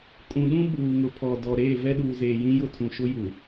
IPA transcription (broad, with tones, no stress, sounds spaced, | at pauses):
kʼ ũ˨ ɗ ũ˦ ɓ uː˨ ŋ ʊ˨ pʰ ɔ˨ d ɔ˨ ɾ eː˦˨ v ɛ˦ ɗ uː˨ z eː˨ j ĩ˦ j ʊ˦ tʰ ũ˨ ʃ ʊ˦ j u˨